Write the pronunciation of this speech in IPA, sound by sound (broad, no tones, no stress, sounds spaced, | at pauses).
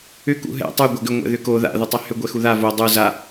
ʏ k ṵ ɦ ɛ̰ tˤ u ɡʷ a ɡ ʏ ŋʷ ɛ̰ ð ʏ k o ð a̰ ð ʏ tˤ ɛ h ʏ ɡʷ ɛ x u ð a v o dˤ u z a